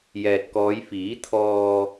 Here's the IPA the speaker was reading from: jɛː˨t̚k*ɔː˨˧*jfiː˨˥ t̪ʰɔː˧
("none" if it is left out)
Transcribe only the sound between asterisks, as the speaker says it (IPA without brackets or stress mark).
ɔː˨˧